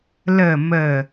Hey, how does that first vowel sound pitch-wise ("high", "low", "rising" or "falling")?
low